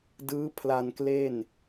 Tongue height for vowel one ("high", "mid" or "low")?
high